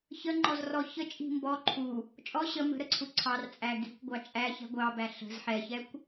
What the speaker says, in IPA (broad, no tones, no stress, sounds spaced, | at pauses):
ç ə ŋ͡ǃ ɔ z r ɔ ç ə t͡ʃʼ i̤ m b ɔ ǃʰ u | t͡ʃʼ ɔ ɕ ə m ə̤ ɾ ə ǀʰ u ǀʰ ɑ r t͡sʼ æ ɡ i̤ kʷ ɡʷ ɑ t͡ʃʼ æ ç ɛ̤ ɡʷ ɑ b æ ɬ ə̤ z ħ ɛ ç ɛ kʷ